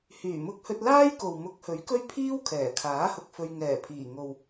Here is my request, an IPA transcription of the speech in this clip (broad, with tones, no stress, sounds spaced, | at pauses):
h yː˨˩ m ʊ˧ k̚ h ɵ˧ t̚ l aː˥ j k o˨ w m ʊ˨˥ k̚ h ɵ˨˥ ɥ k ɵ˥ ɥ pʰ iː˥ w kʰ ɛː˨˩ kʰ aː˨˥ h ʊ˧ k̚ f ɵ˧ ɥ ŋ ɛː˨˩ pʰ iː˨˩ ŋ o˨ w